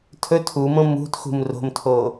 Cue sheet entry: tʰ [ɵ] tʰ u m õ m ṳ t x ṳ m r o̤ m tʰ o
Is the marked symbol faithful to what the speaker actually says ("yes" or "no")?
yes